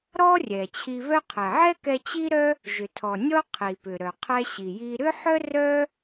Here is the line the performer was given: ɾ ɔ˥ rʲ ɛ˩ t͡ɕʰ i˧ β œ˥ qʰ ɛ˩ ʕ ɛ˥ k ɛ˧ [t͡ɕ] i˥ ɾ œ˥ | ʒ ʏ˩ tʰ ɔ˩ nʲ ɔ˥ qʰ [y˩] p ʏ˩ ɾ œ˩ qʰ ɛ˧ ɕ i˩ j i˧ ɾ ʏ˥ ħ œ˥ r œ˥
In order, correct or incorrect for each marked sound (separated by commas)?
correct, incorrect